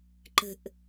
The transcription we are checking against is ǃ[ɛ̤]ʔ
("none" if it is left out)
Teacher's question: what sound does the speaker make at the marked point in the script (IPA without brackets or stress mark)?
ə̤